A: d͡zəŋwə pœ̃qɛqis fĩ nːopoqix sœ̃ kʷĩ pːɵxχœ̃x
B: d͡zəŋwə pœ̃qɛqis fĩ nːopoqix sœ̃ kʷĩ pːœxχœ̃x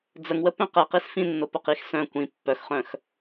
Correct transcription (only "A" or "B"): B